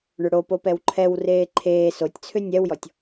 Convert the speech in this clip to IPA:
ɳ ʏ ɽ o p o p ɛ w ǃʰ ɛ w r eː ǃʰ eː s o tʲ t͡sʰ ʏ nʲ ɛ w j ɔ tʲ

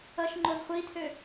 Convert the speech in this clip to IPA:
ʌ ʃ ŋ͡ǃ o z χʷ i tʰ ø

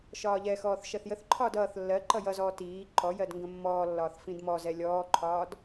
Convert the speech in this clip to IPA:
ʃ ɒː ʎ ɛ x ɔː θ ʃ ɜ θ j ə θ ǃʰ ɒː d ʌː θ lː ɜ ǃ ʌ j ʌ z ɔː t iː ǃ ɔ j ɜ d ŋ ɡ ə̃ mː ɔː lː ɒː θ f ĩ d m ɔ z ɛ lʲ ɔː ǃʰ ɒː d

